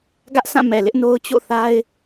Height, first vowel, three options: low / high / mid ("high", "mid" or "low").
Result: low